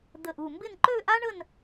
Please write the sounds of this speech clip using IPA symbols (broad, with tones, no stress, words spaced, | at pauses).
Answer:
d̪ə˧˩ʔu˧˩mbɪ˥˧n ǃø˥˧ʔa˥ɳə˥˧n